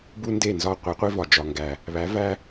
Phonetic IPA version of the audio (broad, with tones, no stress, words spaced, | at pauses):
bu˦nde˦˨nzɒ˦ qʷi˨˦qʷi˦vɒ˨ d͡ʒɒ˨ŋɡæ˨ | βæ˨˦væ˦